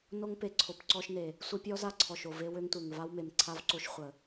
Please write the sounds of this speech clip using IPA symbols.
n o˦ ŋ p e˨ ǀʰ o˨ p ǀ ɔ˦ ʃ n e˨ | sʷ ə˦ pʲ ɔ˦ z a˦ ǀʰ ɔ˨ ʃ o˨ v e˦ w ø˦ ŋ tʷ e˨ ŋ v a˦ w m e˨ m ǀʰ a˦ v ǀ o˦ ʃ χʷ ə˨

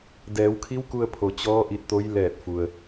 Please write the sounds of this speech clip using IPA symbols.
d ɛː˩˧ w kʰ i˧˥ w k u˧ ə̯ pʰ o˩ t͡ɕ ɔː˧˥ ʔ i˧ t̚ t̪ o˧˥ j l ɛː˧˩ t̚ f u˩ ə̯

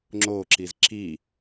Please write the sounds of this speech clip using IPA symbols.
ŋ͡ǁ o ǁ i z ǁ i

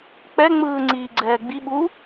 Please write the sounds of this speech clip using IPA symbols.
k͡p ɛ ŋ͡m ɯː ŋ͡ǀ iː ɡ͡ǀ ɛː ɡ͡b i ɓ u

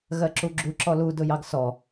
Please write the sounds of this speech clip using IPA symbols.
ɣ ɜ ǁ u ɡ͡ǁ u ǁ ɔ l u d ʊ j ɑ ɡ s ɔ

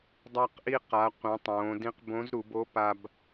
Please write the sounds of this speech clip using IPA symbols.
dˤ a˧ q ʔ i˧ q a˩˧ qʷ ĩ˩˧ tˤ õː˩˧ d ĩ˧˥ q b õ˧˥ z ɾ u˩˧ b o˧˥ p a˧ b

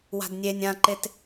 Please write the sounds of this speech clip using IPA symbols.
w a̤ d nʲ e nʲ ã ǃ e t

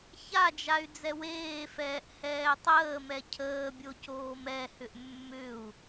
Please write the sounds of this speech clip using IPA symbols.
ç a d͡ʒ a y̯ d͡z ɛ w eː f ɛː ʔ h ɛː tˤ əː m ɛ cʰ əː bʲ o c oː m ɛ h ʏ ʔ mː ʏ u̯

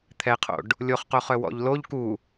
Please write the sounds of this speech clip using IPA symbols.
t̪ʰ ɛ qʰ o̰ ɖ | lʲ o χ q o χ œ w ɔ̰ ʎ l o ʎ k u

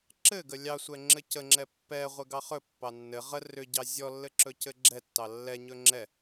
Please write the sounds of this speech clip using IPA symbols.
ǁ ɘ ɡ ə lʲ ɑ sʷ ɛ ŋ͡ǁ ɘ c ə ŋ͡ǁ ɛ pː ɛ ʁʷ ɘ ɡ ɑ χ ɵ pː ɑ nː ɘ ʁ ə r ʏ ɟ ɑ zʲ ɔ lː ɘ ǁ ɵ c ɘ ɡ͡ǁ ɛ tː ɑ lː ɛ ɲ ɵ ŋ͡ǁ ɛ

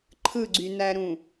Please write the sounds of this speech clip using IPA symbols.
ǃʰ ɯ ɡ͡ǀ y n æ ɾ ũ

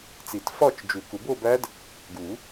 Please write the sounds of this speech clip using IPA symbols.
t͡s i˨˩˦ t f ɒ˥˧ t͡ʃ d͡ʒ u˨˩˦ k u˨˩˦ b o˥˧ b æ˦˥ d | ɡ u˨˩˦

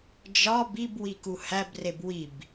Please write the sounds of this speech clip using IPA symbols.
d͡ʒ ɒ b i b w i k u h æ b r e b w i b

